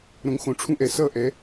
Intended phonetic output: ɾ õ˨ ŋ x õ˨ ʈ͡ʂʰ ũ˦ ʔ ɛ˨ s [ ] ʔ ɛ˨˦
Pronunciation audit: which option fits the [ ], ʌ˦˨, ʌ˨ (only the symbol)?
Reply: ʌ˦˨